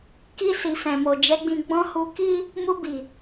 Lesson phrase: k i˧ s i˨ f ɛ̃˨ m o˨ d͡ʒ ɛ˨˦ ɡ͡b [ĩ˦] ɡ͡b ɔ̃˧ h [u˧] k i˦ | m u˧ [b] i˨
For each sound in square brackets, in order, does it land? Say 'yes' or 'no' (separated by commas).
no, yes, yes